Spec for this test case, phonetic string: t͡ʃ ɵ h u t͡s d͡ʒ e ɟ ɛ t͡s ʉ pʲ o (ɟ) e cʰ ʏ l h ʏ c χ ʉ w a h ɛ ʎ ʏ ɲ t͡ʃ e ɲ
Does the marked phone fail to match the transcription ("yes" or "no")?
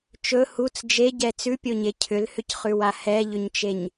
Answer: yes